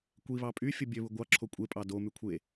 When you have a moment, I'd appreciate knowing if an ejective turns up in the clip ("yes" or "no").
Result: yes